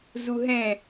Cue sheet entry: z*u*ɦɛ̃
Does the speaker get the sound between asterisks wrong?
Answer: no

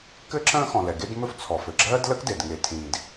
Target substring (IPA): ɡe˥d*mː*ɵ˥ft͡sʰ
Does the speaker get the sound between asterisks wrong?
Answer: yes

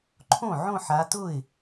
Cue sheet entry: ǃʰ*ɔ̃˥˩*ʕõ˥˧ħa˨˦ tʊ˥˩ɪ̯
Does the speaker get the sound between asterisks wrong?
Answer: yes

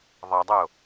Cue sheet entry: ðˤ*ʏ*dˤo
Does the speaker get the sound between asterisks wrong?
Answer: yes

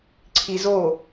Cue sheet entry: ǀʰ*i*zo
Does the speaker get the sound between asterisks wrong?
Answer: no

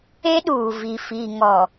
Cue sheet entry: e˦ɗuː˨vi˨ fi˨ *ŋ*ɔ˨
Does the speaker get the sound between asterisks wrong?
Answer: no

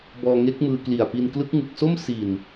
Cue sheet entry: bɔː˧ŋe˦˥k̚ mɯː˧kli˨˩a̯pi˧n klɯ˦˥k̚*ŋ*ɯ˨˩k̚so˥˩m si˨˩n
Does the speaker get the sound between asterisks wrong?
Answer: no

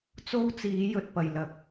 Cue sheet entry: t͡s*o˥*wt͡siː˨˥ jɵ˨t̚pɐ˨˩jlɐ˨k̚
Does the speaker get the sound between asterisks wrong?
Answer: no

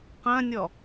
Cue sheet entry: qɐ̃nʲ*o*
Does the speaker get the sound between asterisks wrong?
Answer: yes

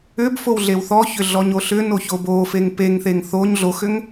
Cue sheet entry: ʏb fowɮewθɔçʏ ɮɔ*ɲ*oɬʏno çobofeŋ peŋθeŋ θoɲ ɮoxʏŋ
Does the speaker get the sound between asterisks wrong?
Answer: no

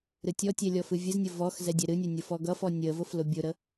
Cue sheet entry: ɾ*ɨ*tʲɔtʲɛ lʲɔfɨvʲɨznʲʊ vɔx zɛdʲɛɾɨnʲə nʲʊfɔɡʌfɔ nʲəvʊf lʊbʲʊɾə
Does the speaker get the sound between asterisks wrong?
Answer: no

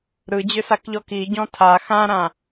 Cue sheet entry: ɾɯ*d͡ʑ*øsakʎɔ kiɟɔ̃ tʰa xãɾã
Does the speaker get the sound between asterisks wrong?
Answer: no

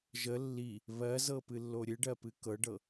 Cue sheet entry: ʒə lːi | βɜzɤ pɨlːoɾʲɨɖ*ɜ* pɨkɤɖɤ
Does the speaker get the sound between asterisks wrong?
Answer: no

